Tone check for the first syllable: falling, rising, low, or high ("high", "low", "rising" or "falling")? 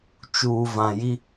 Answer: low